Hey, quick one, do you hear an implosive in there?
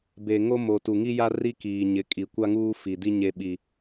yes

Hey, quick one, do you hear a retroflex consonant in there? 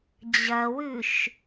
no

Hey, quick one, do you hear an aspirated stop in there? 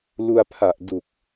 yes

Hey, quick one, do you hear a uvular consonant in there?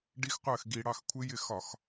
yes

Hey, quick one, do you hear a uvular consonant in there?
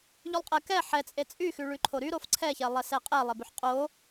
yes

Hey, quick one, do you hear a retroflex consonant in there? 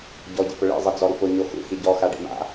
yes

